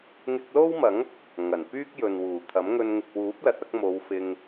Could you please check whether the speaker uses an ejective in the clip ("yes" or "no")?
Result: no